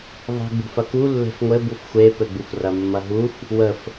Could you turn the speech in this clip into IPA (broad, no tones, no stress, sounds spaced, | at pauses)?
ðˤ e̤ ɡ͡b ṳ f ɐ k u lː e̤ f ŋʷ ɘ b u f xʷ e p ɘ ɡ͡b u f r ɐ mː ɐ ɦ u f | w ə f